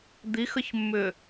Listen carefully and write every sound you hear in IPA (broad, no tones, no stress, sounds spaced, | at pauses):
d̪ i x ə ç mː ʏ